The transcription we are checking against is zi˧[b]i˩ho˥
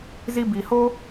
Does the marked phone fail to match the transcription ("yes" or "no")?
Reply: no